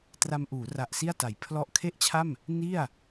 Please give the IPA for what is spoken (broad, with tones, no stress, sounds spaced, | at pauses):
t r a˧ m ʔ uː˩˦ r a˨˩ ʔ s i˥˩ a̯ t a˩˦ j pʰ l ɔ˥˩ ʔ kʰ e˥˩ ʔ t͡ɕʰ a˥˩ m | n i˥˩ a̯